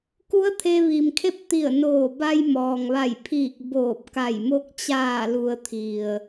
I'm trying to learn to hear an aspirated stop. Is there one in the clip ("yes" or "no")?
yes